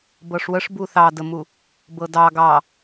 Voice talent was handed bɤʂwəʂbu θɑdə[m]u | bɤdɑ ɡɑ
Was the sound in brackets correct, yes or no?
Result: yes